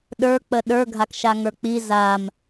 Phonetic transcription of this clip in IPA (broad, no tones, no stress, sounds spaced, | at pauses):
ɗ ə˞ k͡p ə ɗ ə˞ ɡʱ a k ʃ a ŋ ə˞ k͡p i z a m